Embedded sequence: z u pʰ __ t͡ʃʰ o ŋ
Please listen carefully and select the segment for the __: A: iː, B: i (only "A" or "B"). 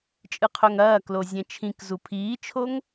A